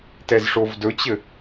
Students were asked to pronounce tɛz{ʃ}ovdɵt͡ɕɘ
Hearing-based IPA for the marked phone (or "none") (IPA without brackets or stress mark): ʂ